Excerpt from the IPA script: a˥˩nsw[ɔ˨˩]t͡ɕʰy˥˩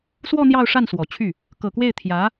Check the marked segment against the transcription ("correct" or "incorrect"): correct